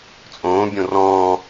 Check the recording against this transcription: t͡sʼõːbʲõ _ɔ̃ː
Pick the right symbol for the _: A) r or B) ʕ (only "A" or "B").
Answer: A